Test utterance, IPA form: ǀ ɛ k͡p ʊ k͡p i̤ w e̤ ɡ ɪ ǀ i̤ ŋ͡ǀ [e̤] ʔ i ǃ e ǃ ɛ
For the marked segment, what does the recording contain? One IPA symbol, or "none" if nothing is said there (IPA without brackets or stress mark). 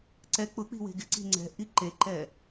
ɛ̤